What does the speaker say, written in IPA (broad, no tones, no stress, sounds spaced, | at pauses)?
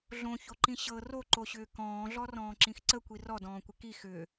ɮ õ ç o ǃ ĩ ɕ ɤ r o ǃ o ɕ ʏː k ɔ̃ː ɮ ɔ r ɔ̃ː ǁ ĩ x ǀ ə kʷ i r ɔ d ɔ̃ː kʷ ɪ k i x ʏː